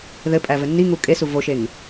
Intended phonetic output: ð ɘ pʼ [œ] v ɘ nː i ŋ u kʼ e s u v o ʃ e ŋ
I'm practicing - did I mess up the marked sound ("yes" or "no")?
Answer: yes